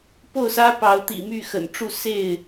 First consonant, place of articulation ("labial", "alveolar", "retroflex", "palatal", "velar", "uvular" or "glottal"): labial